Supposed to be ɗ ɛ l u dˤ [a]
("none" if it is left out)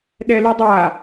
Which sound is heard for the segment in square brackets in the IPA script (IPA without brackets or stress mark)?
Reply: a